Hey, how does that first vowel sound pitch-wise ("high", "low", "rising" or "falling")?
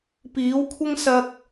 rising